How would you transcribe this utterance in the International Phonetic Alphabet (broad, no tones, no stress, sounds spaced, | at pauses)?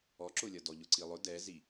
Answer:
ɔ ǁ ʊ lʲ ʌ d ɔ ʎ ʊ ǀ i lˠ ʊ d ɛ z i